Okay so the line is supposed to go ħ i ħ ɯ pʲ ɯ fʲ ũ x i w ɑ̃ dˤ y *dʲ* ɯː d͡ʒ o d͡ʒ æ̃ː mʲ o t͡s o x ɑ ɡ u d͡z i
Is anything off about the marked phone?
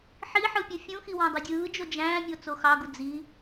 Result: no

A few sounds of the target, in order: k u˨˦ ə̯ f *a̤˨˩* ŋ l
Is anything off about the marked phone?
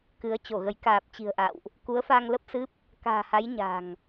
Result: yes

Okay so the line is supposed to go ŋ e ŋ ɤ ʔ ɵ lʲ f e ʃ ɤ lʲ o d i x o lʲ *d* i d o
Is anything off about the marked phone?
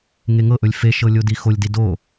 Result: no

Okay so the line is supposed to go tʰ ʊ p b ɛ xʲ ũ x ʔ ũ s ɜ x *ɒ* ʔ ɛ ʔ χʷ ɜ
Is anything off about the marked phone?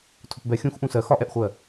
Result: no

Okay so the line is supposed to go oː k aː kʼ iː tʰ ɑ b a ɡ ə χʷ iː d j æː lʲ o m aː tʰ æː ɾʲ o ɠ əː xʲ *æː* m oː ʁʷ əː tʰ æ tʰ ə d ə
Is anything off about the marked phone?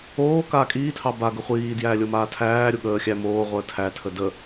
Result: yes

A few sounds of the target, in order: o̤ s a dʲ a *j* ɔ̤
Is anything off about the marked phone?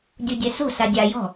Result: no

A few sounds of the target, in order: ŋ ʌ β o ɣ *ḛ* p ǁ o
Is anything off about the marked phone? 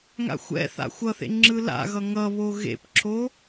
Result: no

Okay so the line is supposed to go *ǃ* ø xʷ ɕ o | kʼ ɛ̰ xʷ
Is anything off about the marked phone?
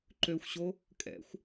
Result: no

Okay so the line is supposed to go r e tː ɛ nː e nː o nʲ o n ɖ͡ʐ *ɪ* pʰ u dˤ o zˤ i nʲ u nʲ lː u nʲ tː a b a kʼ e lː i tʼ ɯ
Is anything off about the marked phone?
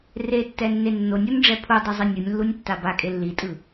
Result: yes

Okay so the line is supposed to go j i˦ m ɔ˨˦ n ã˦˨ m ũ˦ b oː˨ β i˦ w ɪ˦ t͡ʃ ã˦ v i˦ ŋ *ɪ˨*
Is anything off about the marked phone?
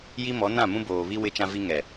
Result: yes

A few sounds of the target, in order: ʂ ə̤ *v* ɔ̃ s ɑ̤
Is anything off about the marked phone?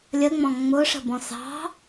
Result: yes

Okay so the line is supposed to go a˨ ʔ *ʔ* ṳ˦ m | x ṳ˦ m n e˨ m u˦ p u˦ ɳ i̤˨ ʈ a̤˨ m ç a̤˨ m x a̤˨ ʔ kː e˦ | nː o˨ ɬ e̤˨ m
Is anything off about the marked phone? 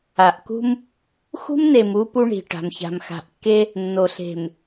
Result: yes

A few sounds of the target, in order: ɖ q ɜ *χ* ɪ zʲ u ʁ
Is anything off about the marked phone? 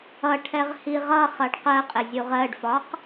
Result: yes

